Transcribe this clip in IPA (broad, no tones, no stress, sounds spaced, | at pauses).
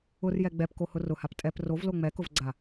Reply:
ʊ r j ɛ ɡ͡b ɛ p k o h ʊ r ʊ h a p tʼ ɛ p r o v l o ŋ͡m ɛ k ʊ v ɡ͡ǀ a